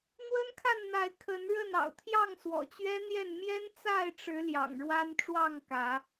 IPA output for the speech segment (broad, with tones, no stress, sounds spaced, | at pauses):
n̪ w ə˦ n kʰ a˥˨ n n̪ a˨˦ ɪ̯ kʰ ə˨˦ n ɻ ə˥˨ n ɑ̰˨˩ ʊ̯ t̪ʰ j ɑ˥˨ ŋ s w ɔ̰˨˩ t͡ɕ ɥ ɛ˦ n̪ j ɛ˥˨ n m j ɛ˦ n t͡s a˥˨ ɪ̯ ʈ͡ʂ ɻ̩˨˦ l j ɑ̰˨˩ ŋ ɻ w a˦ n ʈ͡ʂ w ɑ˥˨ ŋ k ä˨˦